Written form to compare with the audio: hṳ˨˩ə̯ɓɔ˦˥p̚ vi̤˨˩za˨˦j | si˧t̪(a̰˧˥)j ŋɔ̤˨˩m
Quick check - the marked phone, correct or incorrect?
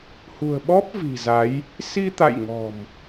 incorrect